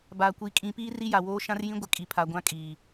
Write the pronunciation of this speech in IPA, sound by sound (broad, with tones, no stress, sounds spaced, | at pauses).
b aː˨ kʷ i˨˦ kʼ ĩ˨˦ p iː˦ r i˦ j a˨ w oː˦ ʃ ã˦ r j ĩ˦ ɡʷ ɪ˨ kʼ i˨ pʰ a˨ ɡʷ ã˦ kʼ iː˨